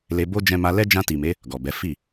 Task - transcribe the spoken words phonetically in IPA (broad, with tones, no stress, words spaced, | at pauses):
le˧bo˦ d͡ʒɛ̃˧ma˧lɛ˦ d͡ʒã˧ti˨me˨˦ | ɡɔ˨bɛ˨˦ fi˦˨